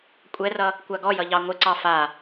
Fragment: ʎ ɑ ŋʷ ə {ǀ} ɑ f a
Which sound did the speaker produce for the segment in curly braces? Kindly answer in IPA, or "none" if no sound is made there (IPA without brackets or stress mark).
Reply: ǀ